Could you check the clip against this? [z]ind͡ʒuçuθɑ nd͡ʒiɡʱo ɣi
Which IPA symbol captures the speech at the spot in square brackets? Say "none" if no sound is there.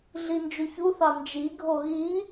ɮ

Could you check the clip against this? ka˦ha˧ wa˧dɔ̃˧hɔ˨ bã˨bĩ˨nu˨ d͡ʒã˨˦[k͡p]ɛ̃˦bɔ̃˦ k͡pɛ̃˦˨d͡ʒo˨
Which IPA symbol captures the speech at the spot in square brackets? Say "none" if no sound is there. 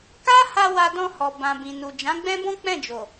ɡ͡b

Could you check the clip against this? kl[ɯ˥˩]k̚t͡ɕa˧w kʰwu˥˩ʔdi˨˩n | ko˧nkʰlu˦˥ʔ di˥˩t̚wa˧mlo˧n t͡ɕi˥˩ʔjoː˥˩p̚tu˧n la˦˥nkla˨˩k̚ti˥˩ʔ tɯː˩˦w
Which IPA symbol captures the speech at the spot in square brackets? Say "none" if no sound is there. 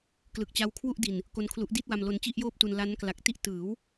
ɯ˨˩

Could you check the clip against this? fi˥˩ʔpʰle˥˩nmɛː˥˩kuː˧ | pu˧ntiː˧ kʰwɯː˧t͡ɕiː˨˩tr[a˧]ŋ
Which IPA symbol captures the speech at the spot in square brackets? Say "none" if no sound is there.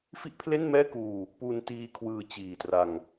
a˧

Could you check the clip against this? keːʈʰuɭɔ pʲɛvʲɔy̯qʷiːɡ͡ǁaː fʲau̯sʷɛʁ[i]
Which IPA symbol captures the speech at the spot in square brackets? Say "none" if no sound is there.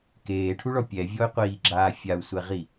i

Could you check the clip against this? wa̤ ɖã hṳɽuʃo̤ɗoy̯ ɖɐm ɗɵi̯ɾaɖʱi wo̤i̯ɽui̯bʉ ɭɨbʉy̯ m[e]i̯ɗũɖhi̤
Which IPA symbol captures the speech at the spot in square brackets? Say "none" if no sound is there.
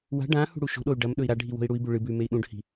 e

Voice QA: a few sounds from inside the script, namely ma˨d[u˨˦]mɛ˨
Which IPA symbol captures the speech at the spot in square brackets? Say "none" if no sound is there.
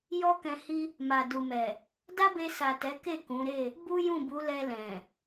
u˨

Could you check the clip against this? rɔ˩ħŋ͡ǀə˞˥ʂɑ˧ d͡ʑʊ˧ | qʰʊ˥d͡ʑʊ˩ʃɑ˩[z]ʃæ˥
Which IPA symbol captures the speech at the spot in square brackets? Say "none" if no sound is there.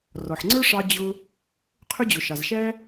z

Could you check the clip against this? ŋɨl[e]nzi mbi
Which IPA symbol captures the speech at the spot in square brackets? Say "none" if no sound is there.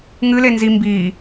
e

